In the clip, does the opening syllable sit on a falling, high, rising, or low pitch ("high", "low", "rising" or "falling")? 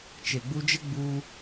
low